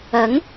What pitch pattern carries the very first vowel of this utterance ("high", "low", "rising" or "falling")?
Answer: rising